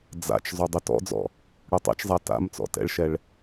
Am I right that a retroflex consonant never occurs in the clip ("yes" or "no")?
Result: no